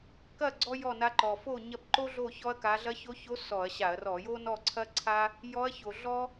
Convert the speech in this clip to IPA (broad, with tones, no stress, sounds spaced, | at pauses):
k ɐ˥˨ ɡ͡ǀ ɔ˥ j ɔ˥˨ n a˧˥ ǃ ɔ˨˩ f o˥˨ ɲ ɐ˥˨ b ǃ o˥ ɮ o˥˨ ç ɔ˥ ɐ̯ k a˧˥ ɮ ɐ˧˥ ç o˧˥ ç o˧˥ s ɔ˧˩˧ ɐ̯ ɕ a˧˩˧ ɐ̯ r ɔ˧˩˧ j o˥ n ɔ˥˨ ǀʰ ɐ˥ ǀʰ a˥ | j ɔ˧˥ ɐ̯ ç o˨˩ ɮ ɔ˥